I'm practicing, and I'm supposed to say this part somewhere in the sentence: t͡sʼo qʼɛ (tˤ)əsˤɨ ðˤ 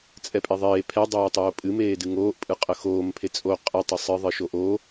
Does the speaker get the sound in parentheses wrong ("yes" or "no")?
no